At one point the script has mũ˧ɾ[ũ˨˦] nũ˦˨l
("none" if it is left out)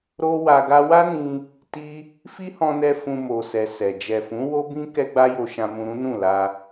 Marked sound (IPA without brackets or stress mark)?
ũ˦